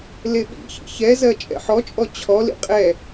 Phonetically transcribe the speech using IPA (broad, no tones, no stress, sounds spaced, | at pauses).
l e ɓ ḭ ç ḭ ç ɛ z ɜ t͡ʃʼ ɛ̰ ħ ɔ t͡ʃʼ ɔ t͡ɕʰ ɔ l ḭ qʼ ɛ